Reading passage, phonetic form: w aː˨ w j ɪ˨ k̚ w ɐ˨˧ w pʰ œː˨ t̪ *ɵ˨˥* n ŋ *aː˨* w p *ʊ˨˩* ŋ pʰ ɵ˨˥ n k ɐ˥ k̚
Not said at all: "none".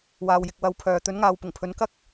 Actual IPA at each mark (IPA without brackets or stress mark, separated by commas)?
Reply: ɵ˨˥, aː˨, ʊ˨˩